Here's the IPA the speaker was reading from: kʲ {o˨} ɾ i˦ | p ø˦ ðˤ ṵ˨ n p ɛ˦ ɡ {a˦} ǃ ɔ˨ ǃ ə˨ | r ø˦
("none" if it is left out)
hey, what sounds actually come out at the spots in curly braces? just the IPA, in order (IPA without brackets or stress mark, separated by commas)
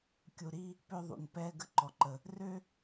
u˨, ə˦